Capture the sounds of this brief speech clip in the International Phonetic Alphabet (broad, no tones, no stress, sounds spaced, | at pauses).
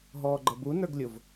ɦ ɔː ɡ͡ǃ ʌ b u n ə˞ ɡ lʲ ʊ v